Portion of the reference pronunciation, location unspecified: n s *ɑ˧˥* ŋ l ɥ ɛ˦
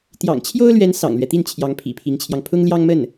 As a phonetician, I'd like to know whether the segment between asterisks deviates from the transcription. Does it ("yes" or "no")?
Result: yes